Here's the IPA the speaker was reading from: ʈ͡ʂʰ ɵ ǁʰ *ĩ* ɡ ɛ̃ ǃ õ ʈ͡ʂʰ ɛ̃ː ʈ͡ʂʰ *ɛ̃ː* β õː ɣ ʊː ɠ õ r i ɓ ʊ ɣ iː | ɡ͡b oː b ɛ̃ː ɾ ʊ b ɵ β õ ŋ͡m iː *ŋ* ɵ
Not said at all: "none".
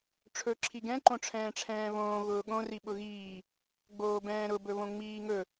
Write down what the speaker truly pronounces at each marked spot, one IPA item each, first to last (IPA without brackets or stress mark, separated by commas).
i, ɛ̃ː, ŋ